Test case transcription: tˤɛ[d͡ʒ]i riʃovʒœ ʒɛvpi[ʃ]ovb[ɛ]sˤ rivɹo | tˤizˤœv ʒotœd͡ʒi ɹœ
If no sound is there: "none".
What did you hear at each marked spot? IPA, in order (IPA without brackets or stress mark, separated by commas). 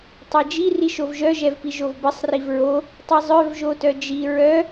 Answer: d͡ʒ, ʒ, ɘ